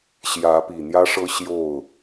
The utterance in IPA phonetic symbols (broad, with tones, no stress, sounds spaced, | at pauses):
ɕ j ä˨˦ p i˨˩ n̪ j ä˦ ʂ ɤ˦ ɕ j o˥˨ ʊ̯